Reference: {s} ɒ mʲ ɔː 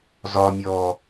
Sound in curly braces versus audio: incorrect: z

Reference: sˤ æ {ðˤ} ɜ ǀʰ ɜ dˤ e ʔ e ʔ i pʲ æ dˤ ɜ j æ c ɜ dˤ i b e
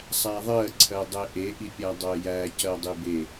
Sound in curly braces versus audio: correct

